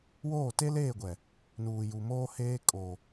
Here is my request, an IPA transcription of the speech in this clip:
w oː˦˨ t e˦ l eː˦˨ ɡʷ ɛ˨ | n uː˨ j u˨ m oː˦ h eː˦ kʼ o˨

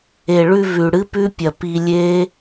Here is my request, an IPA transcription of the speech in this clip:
e˨ ɭ ʉ˧ v ʉ˨ ɽ ɨ˦ p ʉ˦ pʲ ɐ˧ p i˧ lʲ e˦

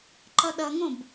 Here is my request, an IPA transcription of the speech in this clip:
ǃ ʌ ɗ ʌ ŋ õ b

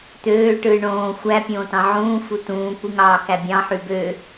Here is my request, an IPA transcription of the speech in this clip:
t̪ øː ʈ ɯː ɳ õː xʷ æ pʲ õː t ɑ̃ ʕ ũː f u t ũː kʷ i ŋ ɑː k æ bʲ ɑ̃ ħ y b ø

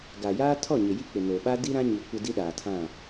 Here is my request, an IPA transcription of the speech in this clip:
ɡ a˨ j aː˦ tʰ ɔ˦˨ ɲ ɪ˨ j i˦ k͡p ɪ˨ n o˨ ɓ a˦ d i˦ ɾ ã˦ ɲ i˨ kʷ ɪ˦ d i˦ ɗ aː˨ tʰ ã˦˨

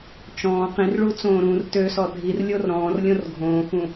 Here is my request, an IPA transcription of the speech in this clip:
t͡ʃ ɔ̃ː q ĩ r ɭ u t͡s õː ɾ ũː r t ø s ɔ dʱ i r lʲ o r ɾ ɔ̃ː r lʲ õ r ɡʱ õː x ũ

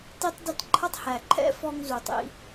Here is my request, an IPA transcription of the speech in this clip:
t i˥ tˤ d ɪ˥ t ǃʰ ʌ˥ tˤ h æ˩ ǃʰ ɛ̰˥ f ɔ˥ ŋ z u˩ tˤ ḭ˧

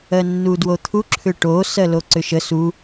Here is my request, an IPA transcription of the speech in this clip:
ɜ nː u d w o t̪ʰ u ǁʰ ʏ ʈ o s ɜ l o ǀ ʏ ʃ ə s u

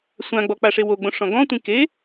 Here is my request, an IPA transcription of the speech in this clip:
sʷ ã ɡ͡b ɔ k͡p a ʂ e w o ɡ͡b õ ʂ ɔ̃ ɡ ɔ̃ tʷ ĩ k e

